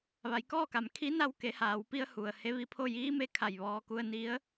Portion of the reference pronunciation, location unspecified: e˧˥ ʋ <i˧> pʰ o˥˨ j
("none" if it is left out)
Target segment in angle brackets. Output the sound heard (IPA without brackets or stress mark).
i˧